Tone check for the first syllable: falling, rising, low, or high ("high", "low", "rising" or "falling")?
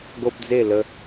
high